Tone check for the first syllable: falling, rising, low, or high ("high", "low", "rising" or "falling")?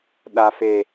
high